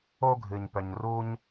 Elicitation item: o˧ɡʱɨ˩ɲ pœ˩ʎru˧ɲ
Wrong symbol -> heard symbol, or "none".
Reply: ʎ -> ɲ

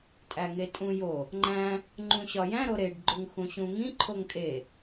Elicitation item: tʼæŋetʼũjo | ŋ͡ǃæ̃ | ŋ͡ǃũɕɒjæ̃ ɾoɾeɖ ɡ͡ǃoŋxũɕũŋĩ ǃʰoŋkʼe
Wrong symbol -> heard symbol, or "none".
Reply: none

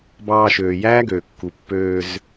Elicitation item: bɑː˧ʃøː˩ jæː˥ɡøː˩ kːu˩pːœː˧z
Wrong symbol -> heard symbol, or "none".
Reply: œː˧ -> øː˧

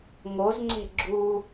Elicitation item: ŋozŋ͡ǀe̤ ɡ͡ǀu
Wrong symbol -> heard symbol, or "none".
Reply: ɡ͡ǀ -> ɡ͡ǁ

